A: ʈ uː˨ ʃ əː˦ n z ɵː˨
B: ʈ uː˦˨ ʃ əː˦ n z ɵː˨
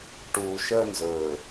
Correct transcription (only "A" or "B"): A